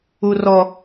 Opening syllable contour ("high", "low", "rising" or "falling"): high